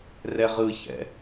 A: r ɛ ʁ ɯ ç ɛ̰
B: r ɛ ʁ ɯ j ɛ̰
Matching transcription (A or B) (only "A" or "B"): A